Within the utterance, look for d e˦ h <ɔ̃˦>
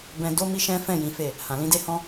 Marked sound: correct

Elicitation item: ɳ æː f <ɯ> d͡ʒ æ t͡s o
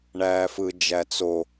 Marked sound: correct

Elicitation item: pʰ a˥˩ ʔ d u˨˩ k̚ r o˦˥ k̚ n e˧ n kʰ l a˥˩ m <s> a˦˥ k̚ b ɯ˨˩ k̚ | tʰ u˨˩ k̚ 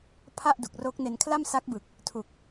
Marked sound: correct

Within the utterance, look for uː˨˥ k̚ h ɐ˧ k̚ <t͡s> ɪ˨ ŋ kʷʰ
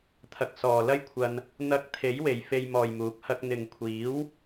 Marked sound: incorrect: n̪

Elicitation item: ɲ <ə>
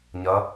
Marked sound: incorrect: ɐ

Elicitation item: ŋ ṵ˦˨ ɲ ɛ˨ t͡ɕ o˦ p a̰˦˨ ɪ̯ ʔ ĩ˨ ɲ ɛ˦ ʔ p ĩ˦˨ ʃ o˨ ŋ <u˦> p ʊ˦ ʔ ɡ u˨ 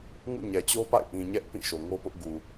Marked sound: incorrect: o˦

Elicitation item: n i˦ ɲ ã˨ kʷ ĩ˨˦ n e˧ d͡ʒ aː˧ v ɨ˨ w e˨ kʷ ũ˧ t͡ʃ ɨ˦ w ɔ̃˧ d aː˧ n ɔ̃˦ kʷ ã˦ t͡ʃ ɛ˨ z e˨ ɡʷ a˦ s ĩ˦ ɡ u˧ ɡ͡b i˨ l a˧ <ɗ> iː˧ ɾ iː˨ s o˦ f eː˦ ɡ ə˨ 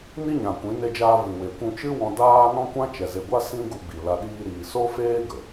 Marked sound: correct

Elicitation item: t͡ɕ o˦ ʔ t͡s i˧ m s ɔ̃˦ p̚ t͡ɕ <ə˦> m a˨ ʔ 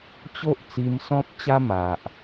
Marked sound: incorrect: a˦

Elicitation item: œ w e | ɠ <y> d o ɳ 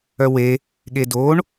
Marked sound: incorrect: e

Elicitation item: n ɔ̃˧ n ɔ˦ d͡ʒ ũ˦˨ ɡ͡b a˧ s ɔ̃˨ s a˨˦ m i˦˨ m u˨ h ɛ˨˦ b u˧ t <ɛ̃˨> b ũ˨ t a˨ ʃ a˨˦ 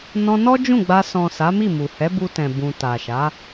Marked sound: correct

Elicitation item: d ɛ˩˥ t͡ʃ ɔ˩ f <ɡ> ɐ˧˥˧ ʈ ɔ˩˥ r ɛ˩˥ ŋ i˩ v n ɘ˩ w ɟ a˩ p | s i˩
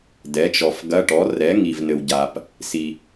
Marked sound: correct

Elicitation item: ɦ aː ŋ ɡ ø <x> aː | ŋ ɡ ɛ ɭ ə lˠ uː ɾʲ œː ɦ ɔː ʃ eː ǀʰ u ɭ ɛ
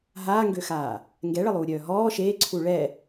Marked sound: correct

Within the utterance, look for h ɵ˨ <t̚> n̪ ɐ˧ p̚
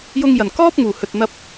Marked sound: correct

